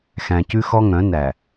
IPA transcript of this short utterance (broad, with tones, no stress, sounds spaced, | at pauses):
x æ̃˨ c ʉ˦ x ɔ˦ ŋ œ̃˨˦ n æ˨